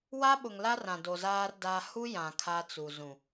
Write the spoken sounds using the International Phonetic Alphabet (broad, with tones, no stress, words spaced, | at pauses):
wa˦ɓʊ˨ŋla˦ rã˨do˨zaː˦r da˦ hu˦jã˨ kʰa˦t͡su˨ zũ˨